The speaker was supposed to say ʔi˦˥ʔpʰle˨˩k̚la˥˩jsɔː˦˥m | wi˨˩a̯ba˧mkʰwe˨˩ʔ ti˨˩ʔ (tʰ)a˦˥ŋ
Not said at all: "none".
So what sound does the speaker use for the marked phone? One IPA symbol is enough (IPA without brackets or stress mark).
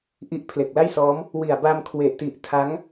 tʰ